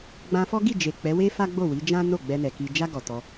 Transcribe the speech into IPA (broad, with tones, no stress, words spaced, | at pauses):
ɡ͡bã˧fɔ˦ɡi˦˨d͡ʒe˨ k͡pɛ˨˦we˦ fa˦ɡ͡bo˦˨wi˨˦d͡ʒã˦ no˦˨ɡ͡bɛ˧nɛ˨ ki˨d͡ʒa˧ ɡɔ˨tɔ˧